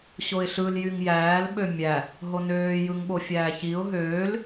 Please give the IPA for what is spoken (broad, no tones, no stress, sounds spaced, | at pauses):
ɕ o ɪ̯ ɬ ɯ l j y ŋ j æː l ɓ ø mʲ æ | ɦ o n øː j ɯ ŋ ɓ o fʲ æː ç i ʊ̯ ɦ øː l